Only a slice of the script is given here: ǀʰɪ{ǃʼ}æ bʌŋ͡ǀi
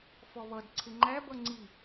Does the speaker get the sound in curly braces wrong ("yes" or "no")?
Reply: yes